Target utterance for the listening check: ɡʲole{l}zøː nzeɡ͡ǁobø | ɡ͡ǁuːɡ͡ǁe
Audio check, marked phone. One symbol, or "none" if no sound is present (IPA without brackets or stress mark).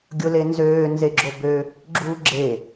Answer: n